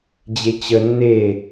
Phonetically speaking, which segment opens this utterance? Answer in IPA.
d͡ʑ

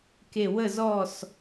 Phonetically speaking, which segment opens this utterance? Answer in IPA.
k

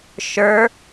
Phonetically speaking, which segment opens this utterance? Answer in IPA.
ʃ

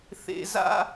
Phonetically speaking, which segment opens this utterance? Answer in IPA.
θ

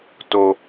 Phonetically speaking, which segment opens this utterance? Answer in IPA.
t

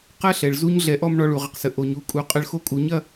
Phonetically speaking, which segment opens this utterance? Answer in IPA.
q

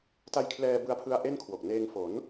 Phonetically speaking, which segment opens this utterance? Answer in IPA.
t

